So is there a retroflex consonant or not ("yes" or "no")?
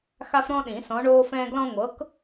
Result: yes